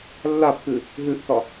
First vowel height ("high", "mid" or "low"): low